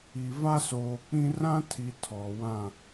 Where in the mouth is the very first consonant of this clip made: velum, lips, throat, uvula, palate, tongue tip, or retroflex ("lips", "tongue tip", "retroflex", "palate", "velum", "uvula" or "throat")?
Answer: lips